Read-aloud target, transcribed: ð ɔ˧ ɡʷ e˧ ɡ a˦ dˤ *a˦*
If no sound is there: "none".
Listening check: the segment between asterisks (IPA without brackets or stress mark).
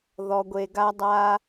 a˦